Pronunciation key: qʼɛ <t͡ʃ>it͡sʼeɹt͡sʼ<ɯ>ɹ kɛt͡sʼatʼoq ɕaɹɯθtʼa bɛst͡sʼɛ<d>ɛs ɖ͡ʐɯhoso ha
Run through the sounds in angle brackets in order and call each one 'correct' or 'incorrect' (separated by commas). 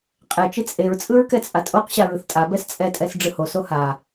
correct, correct, incorrect